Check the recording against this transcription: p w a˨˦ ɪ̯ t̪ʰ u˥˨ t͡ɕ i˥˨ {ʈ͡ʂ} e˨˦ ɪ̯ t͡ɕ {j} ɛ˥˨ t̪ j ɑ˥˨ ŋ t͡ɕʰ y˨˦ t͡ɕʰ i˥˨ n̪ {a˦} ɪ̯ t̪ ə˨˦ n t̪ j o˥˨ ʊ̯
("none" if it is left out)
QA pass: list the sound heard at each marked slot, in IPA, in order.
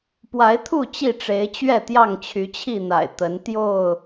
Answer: ʈ͡ʂ, ɥ, a̰˨˩

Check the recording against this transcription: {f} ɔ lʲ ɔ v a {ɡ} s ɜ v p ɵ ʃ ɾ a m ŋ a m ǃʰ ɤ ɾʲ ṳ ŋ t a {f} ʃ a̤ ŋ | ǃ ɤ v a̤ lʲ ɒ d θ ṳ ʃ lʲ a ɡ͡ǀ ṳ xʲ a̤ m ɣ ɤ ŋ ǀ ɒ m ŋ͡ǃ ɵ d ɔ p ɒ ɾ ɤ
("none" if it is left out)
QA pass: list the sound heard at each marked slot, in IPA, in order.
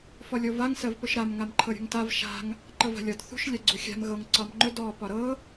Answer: f, ŋ, v

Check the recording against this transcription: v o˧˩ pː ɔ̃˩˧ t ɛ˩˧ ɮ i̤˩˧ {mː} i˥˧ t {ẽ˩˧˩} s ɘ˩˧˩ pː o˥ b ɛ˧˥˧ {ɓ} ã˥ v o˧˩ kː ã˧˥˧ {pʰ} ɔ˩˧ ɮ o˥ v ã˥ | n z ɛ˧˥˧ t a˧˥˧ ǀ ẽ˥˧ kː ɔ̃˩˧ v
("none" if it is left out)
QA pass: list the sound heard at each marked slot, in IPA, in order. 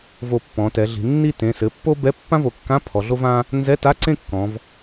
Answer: nː, ẽ˩˧˩, pː, pʰ

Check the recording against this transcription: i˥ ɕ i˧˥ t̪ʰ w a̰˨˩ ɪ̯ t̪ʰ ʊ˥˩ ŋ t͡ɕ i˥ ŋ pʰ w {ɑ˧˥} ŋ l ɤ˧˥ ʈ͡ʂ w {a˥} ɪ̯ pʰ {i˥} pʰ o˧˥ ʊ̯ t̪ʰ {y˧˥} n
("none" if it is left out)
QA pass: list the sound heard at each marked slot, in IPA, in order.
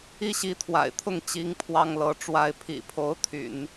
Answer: ɑ˥, a˥, ḭ˨˩, y̰˨˩˦

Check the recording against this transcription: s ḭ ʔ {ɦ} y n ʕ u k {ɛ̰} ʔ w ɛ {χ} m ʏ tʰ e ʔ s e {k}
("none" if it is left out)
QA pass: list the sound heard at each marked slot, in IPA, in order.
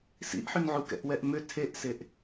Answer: ħ, ɛ̰, ʔ, ʔ

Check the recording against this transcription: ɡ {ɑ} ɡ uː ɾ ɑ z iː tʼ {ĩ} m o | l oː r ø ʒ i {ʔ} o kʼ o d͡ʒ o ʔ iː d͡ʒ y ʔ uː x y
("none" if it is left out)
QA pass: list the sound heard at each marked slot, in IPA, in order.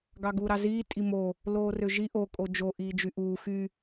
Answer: ɑ, i, ʔ

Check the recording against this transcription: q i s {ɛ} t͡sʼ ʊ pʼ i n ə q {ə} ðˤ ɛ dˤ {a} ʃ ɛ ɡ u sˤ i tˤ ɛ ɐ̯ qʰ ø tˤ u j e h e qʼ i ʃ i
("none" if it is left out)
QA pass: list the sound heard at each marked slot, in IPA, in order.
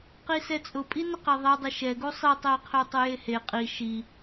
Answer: ɛ, ɛ, ə

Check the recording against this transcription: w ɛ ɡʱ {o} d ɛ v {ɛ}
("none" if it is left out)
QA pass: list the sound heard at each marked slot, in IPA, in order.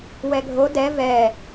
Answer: o, ɛ

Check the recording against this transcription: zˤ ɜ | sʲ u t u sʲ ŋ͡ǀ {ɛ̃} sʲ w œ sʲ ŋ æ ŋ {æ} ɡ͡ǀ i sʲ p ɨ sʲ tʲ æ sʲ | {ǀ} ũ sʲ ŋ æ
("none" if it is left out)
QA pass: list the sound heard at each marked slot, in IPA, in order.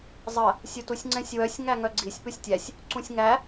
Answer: ɛ̃, œ, ǀ

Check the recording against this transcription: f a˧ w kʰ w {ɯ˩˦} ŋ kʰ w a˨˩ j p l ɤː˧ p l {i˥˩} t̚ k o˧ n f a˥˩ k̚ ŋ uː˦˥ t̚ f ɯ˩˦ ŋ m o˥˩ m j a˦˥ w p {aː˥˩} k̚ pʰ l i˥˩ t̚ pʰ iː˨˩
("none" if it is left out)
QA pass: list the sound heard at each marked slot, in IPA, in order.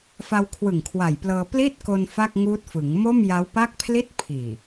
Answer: ɯ˨˩, iː˥˩, a˥˩

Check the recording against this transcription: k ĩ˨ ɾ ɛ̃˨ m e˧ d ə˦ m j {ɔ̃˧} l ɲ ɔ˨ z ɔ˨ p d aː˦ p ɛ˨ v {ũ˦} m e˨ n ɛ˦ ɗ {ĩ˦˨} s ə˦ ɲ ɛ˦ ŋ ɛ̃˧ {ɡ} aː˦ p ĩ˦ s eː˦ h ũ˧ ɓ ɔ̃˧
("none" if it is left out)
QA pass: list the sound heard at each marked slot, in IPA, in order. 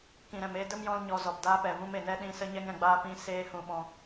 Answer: ɔ̃˧, ũ˦, ĩ˦˨, ɡ͡b

